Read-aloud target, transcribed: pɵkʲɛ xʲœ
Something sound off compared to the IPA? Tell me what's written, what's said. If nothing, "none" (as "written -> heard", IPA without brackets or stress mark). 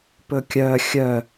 ɛ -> œ